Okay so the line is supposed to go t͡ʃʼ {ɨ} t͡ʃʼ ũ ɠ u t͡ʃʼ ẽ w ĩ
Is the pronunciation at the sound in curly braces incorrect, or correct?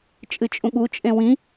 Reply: correct